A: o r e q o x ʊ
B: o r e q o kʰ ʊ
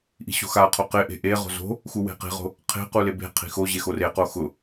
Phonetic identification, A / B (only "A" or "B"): A